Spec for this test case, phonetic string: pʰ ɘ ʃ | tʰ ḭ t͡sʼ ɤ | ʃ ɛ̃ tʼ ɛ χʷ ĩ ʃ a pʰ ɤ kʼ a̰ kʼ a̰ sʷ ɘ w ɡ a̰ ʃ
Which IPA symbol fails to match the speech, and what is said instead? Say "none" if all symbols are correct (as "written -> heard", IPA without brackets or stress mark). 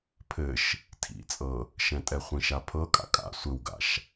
none